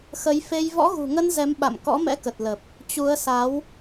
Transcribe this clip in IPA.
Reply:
xə˨˦jfe˧j vɔ̰˧˥ɣṳ˨˩ŋə˧n zɛ˨˦mɓa̰˧˨m kɔ̰˧˥mɛ̰˧˥kə˨˩t̚lə˨˩p̚ | t͡ɕu˨˦ə̯sa˨˦w

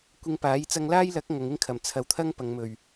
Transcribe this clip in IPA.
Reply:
kʷɪ˧ŋpaː˨˥j t͡sɐ˧ŋlaː˥jlɐ˨˥k̚ ŋɐ˨˧ŋɪ˥ŋkʰɐ˨˩m t͡sʰɐ˨wt̪ʰɐ˥ŋ pɐ˨˧ŋmɵ˨ɥ

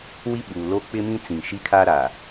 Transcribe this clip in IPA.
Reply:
wi˦ɓuː˨ lo˦ k͡pɪ˦mĩ˦t͡sĩ˨ ʃi˦kʰa˦ɾaː˨

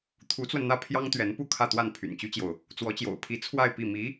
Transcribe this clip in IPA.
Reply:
t̪ʰu˧˥t͡swə˧nn̪ä˥˩ pʰjɑ˥ŋt̪ɥɛ˧˥npu˥˧ kʰä˥˧t̪wa˥˩n pʰy̰˨˩nt͡ɕy˥t͡ɕjo˨ʊ̯ | t͡swɔ˧˥t͡ɕjo̰˨˩ʊ̯pʰi˧˥ t͡sʰwa˥˧ɪ̯ pi˥˩ mi˧˥

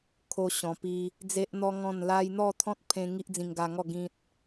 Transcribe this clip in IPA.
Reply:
kʰo˦ɕɔ̃˧pi˦ | d͡ze˦ʔn̪ɔ˦ŋɔ̃˥˧nla˦j n̪ɔ˥˧t̪ʰɔ̃˦t̚pʰẽ˧ ŋi˦ʔd͡zĩ˧ŋɡa˧ŋɔ˥˧ ɡĩ˦t̚

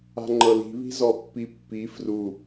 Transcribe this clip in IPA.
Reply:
a̤ŋ͡ǃɤli̤βi̤ zɔpːipːi fru

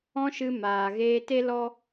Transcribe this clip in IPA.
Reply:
ɔ̃˦ʃɨ˧maː˨ ɣeː˧te˦lɔ˦

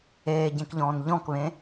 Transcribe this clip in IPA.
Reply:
eːɟẽkʎɔ̃ːn ʎɔ̃kβẽ

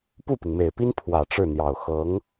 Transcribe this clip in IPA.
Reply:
pu˥˩pi˩ŋme˨˩ɪ̯pi˥n pʰwä˨˩ʈ͡ʂɻ̩˥˩n̪jɑ˨˩ʊ̯ xɤ˧˥ŋ

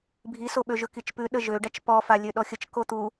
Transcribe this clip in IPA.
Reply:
bʱisoɓøʒɵ kit͡ʃpʉ ɗəʒøɖat͡ʃ pɔfa lʲøɗɔxʲət͡ʃ kot̪u

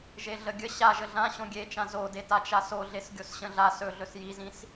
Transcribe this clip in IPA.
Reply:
ʒeɮəɡʲə ɕaʒə ɮã ɕõɡʲet͡ʃã zode tat͡ʃasoɮes ɡʲosɕə̃ɮa sɵɮɵs jizĩs

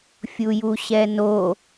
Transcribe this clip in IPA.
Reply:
fʲujuɕɛno

